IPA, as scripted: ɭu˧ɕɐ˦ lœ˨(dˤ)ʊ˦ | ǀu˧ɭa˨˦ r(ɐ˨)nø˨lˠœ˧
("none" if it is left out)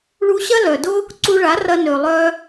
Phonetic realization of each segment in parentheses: d, ɐ˧

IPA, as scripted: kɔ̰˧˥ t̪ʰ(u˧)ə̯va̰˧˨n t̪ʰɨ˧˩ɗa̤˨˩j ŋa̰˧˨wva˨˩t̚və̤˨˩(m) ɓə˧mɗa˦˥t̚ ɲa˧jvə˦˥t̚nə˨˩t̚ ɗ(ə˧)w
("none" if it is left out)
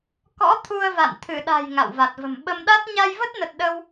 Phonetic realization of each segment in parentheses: u˧, m, ə˧

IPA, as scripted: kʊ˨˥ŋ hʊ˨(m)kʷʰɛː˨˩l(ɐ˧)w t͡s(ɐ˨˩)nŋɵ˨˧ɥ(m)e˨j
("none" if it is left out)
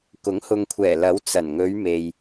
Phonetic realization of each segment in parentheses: ŋ, ɐ˨˥, ɐ˨˩, m

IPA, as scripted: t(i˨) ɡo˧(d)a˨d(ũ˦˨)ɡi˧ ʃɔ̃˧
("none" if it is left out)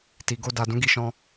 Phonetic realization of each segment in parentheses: i˨, d, ũ˨˦

